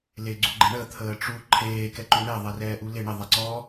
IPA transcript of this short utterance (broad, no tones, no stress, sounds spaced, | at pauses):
l e ɡ͡ǀ u ɡ͡ǃ ɪ ɳ ə t̪ʰ əː ʈ͡ʂ u ǃʰ eː k ɛ ǃ u ɳ ɛ ðˤ e r ɛː ʔ u l ɪ ɳ ɪ ðˤ ɛ ǀ ɔ